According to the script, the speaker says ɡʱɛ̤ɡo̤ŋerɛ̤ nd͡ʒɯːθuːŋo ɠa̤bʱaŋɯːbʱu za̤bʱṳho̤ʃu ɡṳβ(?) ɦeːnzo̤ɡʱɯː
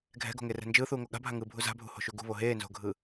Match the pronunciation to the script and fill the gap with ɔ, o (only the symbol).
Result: o